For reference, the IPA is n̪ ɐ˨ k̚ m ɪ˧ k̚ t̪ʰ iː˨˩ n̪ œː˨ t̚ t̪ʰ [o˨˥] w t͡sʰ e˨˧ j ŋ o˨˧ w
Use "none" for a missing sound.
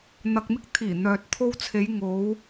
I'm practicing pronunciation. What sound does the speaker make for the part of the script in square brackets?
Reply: o˧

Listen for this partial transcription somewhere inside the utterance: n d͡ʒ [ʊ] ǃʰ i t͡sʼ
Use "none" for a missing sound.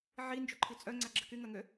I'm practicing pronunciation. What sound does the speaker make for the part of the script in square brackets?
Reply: ʊ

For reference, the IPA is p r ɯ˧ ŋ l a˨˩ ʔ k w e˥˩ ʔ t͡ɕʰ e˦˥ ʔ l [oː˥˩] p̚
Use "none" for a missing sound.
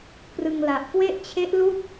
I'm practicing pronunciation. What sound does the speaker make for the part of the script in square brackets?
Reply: uː˥˩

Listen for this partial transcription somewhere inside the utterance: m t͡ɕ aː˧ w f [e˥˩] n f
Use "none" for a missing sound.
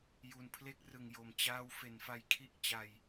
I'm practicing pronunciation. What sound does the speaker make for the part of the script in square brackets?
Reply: e˩˦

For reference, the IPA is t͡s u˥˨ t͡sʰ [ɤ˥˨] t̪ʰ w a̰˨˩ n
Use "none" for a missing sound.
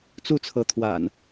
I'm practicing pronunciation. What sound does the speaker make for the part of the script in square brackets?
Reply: ɤ˨˦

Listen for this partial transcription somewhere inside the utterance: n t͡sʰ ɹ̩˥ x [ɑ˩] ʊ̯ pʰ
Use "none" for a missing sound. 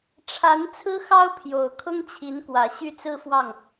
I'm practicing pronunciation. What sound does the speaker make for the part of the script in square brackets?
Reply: ɑ˥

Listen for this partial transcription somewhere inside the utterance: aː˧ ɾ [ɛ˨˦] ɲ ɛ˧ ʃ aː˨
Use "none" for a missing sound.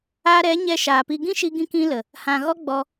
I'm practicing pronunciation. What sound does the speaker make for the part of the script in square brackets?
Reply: ɛ˨˦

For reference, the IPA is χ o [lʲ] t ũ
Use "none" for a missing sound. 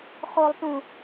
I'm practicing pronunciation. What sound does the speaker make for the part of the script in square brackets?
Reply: lˠ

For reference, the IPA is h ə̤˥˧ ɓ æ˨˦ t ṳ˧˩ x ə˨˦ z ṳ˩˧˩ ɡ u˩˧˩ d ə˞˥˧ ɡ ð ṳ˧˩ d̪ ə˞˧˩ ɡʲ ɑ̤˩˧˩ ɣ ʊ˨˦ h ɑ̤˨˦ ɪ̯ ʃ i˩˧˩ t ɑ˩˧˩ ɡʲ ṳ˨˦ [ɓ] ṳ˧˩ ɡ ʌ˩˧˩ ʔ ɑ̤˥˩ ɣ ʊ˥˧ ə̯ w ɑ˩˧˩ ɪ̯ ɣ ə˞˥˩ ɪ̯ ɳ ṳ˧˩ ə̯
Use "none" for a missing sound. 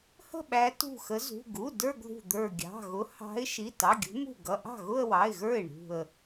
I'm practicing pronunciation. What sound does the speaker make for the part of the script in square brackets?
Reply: m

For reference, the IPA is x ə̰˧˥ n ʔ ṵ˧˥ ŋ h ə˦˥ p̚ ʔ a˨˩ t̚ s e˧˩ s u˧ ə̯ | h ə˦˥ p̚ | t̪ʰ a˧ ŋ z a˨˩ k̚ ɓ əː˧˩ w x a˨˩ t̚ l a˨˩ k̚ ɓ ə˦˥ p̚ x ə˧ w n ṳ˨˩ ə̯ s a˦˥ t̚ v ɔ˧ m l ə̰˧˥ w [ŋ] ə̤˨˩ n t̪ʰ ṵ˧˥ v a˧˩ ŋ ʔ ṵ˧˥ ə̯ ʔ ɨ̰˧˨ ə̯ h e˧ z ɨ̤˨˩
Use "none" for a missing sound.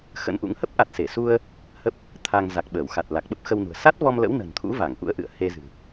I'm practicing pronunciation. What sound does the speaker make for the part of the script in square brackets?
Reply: n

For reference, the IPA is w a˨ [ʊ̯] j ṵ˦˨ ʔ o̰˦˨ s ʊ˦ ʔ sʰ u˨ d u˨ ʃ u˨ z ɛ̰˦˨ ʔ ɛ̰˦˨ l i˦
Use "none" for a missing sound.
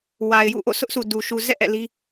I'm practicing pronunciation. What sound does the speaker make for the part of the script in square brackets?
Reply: ɪ̯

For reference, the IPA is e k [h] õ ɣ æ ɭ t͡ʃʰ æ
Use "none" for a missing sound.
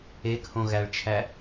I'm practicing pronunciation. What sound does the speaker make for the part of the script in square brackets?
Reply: h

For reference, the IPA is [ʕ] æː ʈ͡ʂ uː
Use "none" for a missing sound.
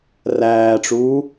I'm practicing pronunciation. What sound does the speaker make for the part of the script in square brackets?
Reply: r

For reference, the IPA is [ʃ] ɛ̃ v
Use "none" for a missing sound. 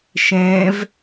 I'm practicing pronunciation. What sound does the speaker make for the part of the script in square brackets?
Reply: ʃ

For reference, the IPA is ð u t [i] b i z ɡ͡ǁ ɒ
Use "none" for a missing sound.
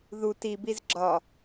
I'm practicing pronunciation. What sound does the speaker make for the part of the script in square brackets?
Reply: i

